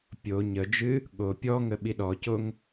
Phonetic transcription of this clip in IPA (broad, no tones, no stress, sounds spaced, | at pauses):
pʲ o ɲ ə d͡ʒ ɨ | ɠ o pʲ ɔ ŋ ə ɓ i ɗ ɔ c o ŋ